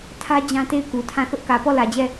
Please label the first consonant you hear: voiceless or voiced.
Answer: voiceless